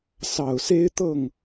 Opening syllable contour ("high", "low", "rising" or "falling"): low